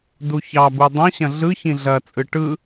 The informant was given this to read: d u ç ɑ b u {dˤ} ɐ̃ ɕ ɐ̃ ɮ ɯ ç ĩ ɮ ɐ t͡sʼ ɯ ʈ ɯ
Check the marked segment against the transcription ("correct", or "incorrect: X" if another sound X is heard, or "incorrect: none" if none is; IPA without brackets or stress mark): correct